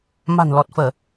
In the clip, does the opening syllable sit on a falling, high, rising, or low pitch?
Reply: low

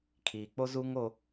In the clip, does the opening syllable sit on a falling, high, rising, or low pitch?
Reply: low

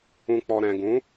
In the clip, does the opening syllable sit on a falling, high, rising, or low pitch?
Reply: low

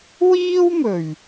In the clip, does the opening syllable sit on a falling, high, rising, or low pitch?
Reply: high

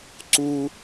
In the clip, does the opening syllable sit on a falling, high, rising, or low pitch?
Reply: high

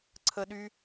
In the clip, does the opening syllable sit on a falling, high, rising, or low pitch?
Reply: high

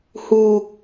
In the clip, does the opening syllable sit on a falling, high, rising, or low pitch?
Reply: low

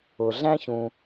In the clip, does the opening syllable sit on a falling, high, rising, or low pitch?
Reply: low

